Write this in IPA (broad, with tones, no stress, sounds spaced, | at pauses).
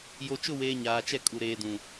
j o˨ t͡ʃ ʊ˦˨ w eː˨ ɲ aː˨ t͡ʃ ɛ˦˨ kʼ u˨ ɾ eː˨ d ũ˨